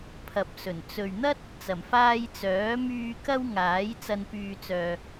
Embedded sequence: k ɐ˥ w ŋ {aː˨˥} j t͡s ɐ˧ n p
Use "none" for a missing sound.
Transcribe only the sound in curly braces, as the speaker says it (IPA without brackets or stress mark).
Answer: aː˨˥